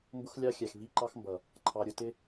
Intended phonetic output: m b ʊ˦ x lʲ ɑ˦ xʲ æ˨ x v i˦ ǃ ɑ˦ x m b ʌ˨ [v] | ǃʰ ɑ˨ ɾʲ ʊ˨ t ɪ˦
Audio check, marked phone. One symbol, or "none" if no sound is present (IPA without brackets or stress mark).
none